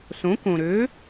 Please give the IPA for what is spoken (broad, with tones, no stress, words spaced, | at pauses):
sõ˩˥ kõ˩ɾø˩˥